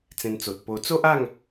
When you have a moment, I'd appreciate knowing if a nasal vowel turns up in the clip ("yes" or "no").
yes